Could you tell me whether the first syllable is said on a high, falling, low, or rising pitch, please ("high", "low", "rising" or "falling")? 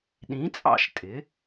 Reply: rising